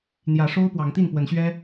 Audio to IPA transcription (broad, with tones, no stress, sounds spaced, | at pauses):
n̪ j ä˨˦ ʂ o˦ ʊ̯ p w ɑ˨˦ ŋ t̪ i˥˨ n p w ə˨˦ n ɕ ɥ ɛ˦